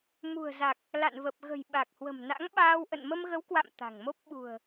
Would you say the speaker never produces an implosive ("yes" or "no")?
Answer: no